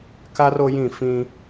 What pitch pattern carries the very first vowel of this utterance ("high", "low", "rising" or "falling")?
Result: high